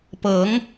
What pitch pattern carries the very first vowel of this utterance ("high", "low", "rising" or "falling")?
rising